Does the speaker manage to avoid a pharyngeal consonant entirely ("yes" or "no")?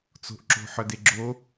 no